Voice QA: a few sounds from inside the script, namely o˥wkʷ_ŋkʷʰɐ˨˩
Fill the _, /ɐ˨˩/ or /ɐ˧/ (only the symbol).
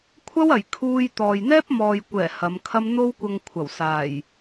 ɐ˧